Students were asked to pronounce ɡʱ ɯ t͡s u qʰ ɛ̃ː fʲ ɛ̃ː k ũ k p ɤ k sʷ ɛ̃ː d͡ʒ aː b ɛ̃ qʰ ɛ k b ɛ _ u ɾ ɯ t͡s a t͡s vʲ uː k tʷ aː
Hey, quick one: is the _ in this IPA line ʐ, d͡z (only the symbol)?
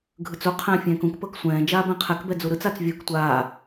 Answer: d͡z